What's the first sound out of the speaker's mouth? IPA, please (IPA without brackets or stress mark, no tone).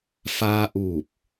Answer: f